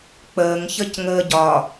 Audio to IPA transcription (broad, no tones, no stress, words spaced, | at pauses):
k͡pəːŋ çəcŋəːɟɒ